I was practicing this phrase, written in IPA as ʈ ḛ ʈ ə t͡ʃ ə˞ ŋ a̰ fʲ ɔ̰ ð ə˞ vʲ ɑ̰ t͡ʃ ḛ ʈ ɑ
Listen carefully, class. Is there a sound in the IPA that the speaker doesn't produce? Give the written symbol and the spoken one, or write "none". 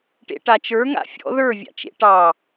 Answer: ə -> a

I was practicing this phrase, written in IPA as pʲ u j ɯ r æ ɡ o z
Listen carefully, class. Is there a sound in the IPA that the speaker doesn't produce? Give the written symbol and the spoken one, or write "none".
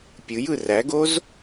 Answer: u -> ɯ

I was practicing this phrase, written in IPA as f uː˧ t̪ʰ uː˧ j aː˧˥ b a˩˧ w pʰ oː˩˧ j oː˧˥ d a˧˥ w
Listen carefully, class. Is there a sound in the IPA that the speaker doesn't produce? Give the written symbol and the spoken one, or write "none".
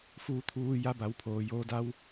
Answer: aː˧˥ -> a˧˥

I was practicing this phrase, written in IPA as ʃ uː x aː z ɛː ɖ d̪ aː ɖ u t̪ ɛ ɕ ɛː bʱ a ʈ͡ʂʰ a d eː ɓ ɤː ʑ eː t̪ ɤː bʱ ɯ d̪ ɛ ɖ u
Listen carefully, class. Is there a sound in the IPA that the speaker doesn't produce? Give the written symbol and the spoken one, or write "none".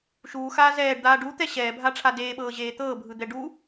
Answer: none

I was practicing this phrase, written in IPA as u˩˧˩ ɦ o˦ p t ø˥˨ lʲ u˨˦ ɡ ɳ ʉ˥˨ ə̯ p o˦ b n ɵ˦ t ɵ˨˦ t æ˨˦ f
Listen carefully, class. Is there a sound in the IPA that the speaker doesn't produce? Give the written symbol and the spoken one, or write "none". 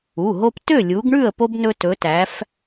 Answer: none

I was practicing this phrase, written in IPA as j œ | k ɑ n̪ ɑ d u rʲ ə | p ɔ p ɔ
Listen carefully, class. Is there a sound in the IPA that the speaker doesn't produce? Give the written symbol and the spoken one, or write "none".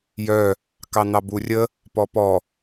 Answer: d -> b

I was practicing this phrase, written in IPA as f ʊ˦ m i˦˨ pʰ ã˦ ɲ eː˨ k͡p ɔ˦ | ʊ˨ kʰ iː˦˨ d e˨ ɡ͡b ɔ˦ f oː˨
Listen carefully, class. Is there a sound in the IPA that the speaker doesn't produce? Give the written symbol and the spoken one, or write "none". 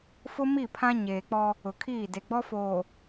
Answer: none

